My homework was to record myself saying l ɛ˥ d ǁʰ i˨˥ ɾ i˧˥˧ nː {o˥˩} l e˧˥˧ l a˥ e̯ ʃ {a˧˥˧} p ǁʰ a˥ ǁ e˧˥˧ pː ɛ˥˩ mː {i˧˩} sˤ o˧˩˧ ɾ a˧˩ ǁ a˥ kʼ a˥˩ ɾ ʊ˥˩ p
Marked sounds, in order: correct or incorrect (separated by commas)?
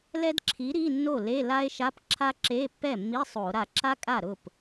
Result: correct, correct, incorrect